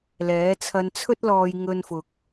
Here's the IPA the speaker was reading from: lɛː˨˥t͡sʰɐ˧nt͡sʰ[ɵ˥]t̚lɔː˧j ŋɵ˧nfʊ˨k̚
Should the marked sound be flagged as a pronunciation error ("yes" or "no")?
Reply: no